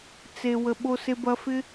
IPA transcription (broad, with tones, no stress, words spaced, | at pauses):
t͡se˧ wə˧ ɓo˧se˧bɐ˧ fɪ˥